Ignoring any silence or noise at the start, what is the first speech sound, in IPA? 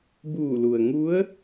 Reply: b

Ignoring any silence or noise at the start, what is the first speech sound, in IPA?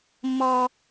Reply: mː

